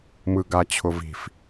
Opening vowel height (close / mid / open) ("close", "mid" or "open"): close